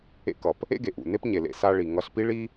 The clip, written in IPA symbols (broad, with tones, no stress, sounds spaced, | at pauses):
ḛ˧ k ʌ˩ p | ḛ˥ ɡ e˩ ʔ ṵ˩ n e˥ p ɲ e˩ l ḛ˧ s a˧ ɭ i˩ ŋ ʌ˧ ɬ p i˥ ɭ i˥